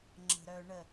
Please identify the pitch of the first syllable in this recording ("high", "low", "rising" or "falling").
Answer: low